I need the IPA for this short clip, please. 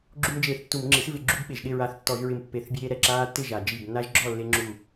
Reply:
ɡ͡ǁ u˦ m d͡ʒ eː˧˩ θ tː u˧˩˧ m ŋ͡ǁ i˩˥ s v ɪ˧˩˧ ɡ͡ǁ u˦ b ɓ e˩ ʒ ɗ ɪ˥˨ ɹ a˧˩ θ tː ɔ˧˩˧ ʒ ɹ ɪ˧˩ m pː e˧˩˧ θ bʲ eː˦ ɾ ɛ˩ ǁ aː˦ tː ɪ˥˨ ʒ a˩ d͡ʒ i˧˩ b nː a˦ ʒ ɡ͡ǁ ɔ˥˨ lː e˦ ŋ͡ǁ u˧˩

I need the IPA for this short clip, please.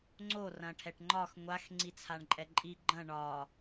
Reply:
ŋ͡ǀ o r ɐ̃ ʈʰ ɛ ʈ ŋ͡ǃ ɒ x ŋʷ a x ŋ͡ǀ i t͡sʰ a ɳ ǃʼ ɛ ǃʼ i ɡ͡ǃ ɐ̃ ɳ ɒ

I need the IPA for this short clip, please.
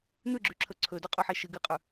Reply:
n̪ ʉ ɡ͡ǁ ʉ ǁʰ ɵ ǀʰ ɵ d ɵ qʼ ʉ ħ e ʃ ɨ ɡ ɨ qʼ ʉ

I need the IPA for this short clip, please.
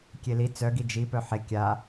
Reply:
kʲ e l i t͡s œ ɡ i d͡ʒ i p œ ħ e kʲ a

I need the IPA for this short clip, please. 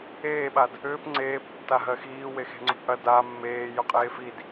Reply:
eː ɓ a d | ʏː p ŋ͡ǀ eː p tː a ɦ ɜ x iː w e x e̤ ŋ͡ǀ ʊ p ʔ ɐ d a mː eː j ʊ qʼ eː f i d

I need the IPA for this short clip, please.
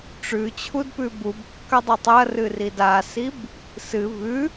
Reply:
ʈ͡ʂ ʉ t͡ɕʰ u d p ʉ b u b kː ɐ dˤ ʉ tˤ ɐ r ɨ r i d a s i b | s ɨ v ʉ

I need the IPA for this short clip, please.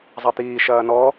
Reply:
zˤ ɐ t̪ iː ʃ ɐː n ɔ

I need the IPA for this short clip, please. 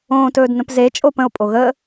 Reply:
õː t ɵː d n ə̃ p z e t͡ʃʼ o p ə̃ o̯ pʼ o ɣ əː

